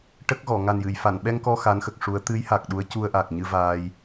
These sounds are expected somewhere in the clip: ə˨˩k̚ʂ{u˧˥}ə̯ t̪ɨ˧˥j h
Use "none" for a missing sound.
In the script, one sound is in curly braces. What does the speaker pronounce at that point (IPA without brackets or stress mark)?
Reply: u˧˥